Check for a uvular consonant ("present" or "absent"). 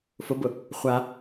present